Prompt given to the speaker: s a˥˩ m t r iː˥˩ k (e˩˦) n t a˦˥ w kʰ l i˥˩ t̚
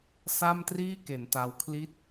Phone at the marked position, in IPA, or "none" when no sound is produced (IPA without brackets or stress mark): e˩˦